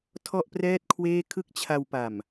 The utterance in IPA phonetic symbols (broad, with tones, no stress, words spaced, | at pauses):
tʰɔ˥˩ʔprɛː˥˩t̚kʰweː˥˩ kʰɯ˥˩k̚t͡ɕʰa˧wpa˨˩m